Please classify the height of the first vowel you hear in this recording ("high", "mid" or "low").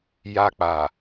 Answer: low